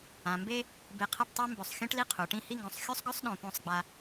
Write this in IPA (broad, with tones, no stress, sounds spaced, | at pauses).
ã˩˧ m b e˥ | b e˧ qʰ ɐ˥˧ ʈ tˤ e˥ m b ɵ˧˩ sˤ xʲ õ˥ ʈ l i˥˧ qʰ u˩˧ ʈ ĩ˥˧ h i˥˧ ŋ ɡ õ˧˩ sˤ xʲ u˥ sˤ ɡ ɵ˥ sˤ ɗ õ˧ p õ˥˧ sˤ ɡ͡b a˧